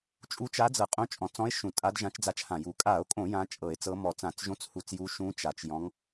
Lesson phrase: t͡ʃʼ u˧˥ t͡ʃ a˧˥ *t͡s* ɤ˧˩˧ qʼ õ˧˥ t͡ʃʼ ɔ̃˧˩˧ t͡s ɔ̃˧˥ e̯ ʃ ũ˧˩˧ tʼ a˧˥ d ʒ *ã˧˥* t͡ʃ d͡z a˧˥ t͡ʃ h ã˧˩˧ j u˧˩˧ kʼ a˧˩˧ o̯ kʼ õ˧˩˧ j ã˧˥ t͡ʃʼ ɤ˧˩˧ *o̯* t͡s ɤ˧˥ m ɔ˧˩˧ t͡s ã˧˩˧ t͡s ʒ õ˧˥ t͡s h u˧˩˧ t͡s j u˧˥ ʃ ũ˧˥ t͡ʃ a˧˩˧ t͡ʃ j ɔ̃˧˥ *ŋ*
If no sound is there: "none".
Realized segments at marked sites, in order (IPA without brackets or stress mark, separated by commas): d͡z, ã˧˥, e̯, ŋ